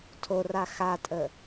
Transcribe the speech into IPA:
tʰ o r a x a tʼ ə

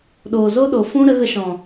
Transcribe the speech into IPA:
ɗ oː˨ z o˦ ɗ o˨ f ũ˦ ɾ ə˨˦ ɣ ə˧ ʃ ɔ̃˨

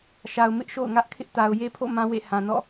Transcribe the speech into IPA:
ʃ a˨ ʊ̯ m ɪ˦ ʔ ʃ o̰˦˨ ʊ̯ ŋ ä˦ ʔ kʰ ɪ˦ ʔ t a˨ ʊ̯ j e˦ pʰ o̰˦˨ m ã˦ w ḛ˦˨ h ã˨ n ɔ̰˦˨

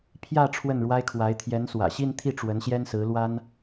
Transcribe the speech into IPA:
pʰ j ä˥˧ ʈ͡ʂʰ w ə˥˩ n ɻ w a˥ ɪ̯ kʰ w a˧˥ ɪ̯ t̪ʰ j ɛ˧˥ n s w ä̰˨˩ ɕ i˥˧ n t̪ʰ i˥˩ ʈ͡ʂ w ə˧˥ n ɕ j ɛ˥ n s ɹ̩˧˥ l w a˥ n

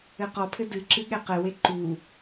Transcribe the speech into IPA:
ɘ q ɔ pʰ ɘ d ɨ ǁ ɨ ɠ ɛ q ɘ w e ǃ u

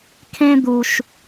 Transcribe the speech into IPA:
kʰ ẽ˦ d̪ u˦ ʃ

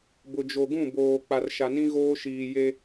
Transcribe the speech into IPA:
b ʊ˨ d͡ʒ o˨ ɡ ũ˦˨ b oː˨ k͡p a˨ r ʃ a˨ n ĩ˦ ɣ oː˦ ʃ iː˨ j e˦

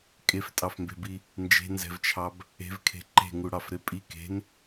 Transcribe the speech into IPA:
kʼ e f tʼ ɑ f m b e̤ b i | n d͡ʒ e̤ n z ɛ̤ v t͡ʃʰ ɑ b | e̤ v kʰ e̤ ǃ e̤ ŋ u ɽ ɑ f ɾ e pʼ i k e̤ n

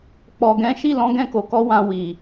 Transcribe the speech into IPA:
k͡p ɔ˨ ɡ ɛ̃˨˦ ʃ i˦˨ l ɔ̃˨˦ ɡ ɛ̃˦˨ k o˨ k ɔ˧ w ã˨ w i˨

